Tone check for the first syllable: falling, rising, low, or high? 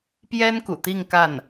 high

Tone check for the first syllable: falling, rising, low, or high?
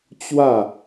falling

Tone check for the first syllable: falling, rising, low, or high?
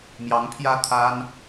rising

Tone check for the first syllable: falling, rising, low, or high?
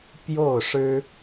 falling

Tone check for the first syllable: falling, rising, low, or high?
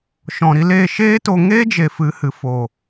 low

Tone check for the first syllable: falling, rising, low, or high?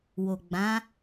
low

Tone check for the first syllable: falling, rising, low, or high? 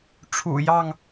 low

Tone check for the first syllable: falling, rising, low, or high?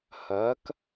rising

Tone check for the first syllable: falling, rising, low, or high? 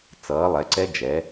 rising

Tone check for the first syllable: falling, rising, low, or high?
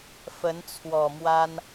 rising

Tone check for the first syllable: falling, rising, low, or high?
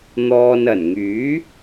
low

